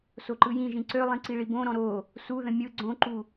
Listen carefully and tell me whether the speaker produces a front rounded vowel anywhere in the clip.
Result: yes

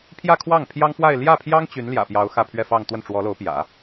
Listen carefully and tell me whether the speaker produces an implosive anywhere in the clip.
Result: no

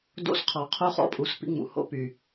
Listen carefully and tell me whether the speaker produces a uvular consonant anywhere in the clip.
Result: yes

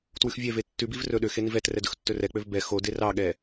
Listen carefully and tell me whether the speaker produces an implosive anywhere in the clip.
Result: yes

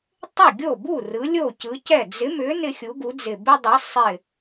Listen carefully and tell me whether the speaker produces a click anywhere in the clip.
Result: no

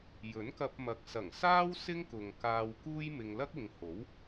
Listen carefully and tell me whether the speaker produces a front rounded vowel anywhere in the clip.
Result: no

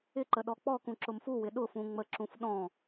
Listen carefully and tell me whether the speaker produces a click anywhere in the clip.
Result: yes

